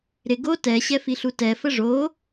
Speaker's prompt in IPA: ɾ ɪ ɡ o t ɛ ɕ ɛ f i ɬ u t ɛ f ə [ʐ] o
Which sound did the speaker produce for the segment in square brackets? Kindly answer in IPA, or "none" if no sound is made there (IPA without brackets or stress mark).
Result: ʐ